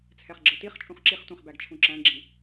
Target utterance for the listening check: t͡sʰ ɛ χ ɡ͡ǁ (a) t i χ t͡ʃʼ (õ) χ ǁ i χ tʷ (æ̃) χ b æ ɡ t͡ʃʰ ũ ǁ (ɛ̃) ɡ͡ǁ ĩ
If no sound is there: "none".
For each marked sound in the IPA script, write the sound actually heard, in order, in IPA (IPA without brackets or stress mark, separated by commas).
ə, ũ, ɛ̃, æ̃